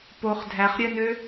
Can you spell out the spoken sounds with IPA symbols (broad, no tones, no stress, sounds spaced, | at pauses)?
p o χ dʱ æ χ ɾʲ œ n ø